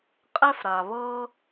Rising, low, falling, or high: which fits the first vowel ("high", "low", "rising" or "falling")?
high